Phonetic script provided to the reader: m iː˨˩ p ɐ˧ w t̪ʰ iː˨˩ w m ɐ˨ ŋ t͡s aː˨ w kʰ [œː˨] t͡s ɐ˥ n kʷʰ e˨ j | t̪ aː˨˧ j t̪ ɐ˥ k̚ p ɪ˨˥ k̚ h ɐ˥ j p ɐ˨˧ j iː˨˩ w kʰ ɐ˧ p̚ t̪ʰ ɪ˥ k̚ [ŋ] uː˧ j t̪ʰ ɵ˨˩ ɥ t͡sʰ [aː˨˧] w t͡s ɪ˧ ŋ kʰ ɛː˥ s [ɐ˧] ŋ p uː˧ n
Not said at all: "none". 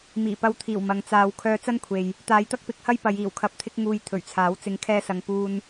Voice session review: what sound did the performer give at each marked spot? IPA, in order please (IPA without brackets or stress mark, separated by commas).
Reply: œː˧, ŋ, aː˨˥, ɐ˧